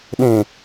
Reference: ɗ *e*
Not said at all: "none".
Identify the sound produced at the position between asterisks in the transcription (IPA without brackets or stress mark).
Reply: ẽ